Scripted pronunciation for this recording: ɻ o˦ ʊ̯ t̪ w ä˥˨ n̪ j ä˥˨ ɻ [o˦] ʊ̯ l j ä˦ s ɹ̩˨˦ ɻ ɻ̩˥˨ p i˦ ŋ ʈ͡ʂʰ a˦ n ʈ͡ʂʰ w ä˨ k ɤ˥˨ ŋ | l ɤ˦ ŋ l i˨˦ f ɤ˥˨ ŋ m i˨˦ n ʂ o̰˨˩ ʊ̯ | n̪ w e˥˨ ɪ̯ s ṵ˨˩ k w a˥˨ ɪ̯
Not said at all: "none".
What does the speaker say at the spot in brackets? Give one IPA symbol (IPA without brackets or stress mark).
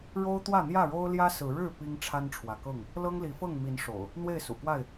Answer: o˦